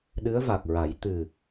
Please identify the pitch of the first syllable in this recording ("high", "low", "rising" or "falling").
rising